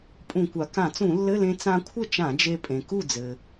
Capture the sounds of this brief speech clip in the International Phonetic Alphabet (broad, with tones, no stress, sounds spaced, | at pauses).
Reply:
pʼ ũ˧˩˧ kʷ a˩ k ã˧˩˧ t͡s ũ˧˩˧ lː ɘ˧˥˧ l ẽ˧ t͡s ã˧ kʷʰ ɘ˥˩ t͡ʃ ã˧˩˧ d͡ʒ e˧ pʼ ẽ˩ k u˥˩ d͡z ɘ˩